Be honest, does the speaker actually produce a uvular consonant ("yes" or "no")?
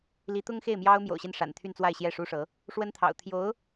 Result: no